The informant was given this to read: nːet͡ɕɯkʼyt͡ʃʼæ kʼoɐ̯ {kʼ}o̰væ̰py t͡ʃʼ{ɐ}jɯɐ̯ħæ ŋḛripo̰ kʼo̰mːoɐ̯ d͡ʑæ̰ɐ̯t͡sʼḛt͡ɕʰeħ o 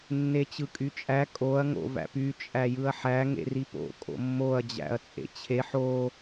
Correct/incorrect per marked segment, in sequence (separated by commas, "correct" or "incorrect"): incorrect, incorrect